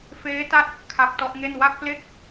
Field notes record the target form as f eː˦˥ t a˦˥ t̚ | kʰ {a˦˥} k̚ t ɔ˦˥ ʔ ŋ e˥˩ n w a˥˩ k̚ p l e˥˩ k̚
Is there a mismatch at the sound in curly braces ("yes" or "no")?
no